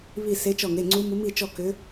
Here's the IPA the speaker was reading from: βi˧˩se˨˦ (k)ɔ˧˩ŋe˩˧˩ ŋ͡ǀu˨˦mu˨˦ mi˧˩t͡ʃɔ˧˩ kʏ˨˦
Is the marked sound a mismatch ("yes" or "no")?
yes